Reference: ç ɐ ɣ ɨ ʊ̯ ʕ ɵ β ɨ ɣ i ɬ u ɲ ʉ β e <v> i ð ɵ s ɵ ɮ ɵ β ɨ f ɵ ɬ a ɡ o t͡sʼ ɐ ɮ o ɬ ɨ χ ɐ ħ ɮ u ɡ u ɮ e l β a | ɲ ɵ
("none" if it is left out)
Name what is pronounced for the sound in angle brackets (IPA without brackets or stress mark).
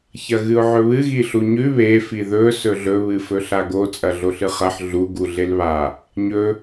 f